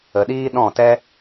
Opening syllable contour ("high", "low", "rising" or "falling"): low